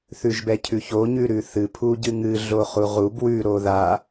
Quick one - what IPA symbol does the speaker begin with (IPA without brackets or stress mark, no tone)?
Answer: θ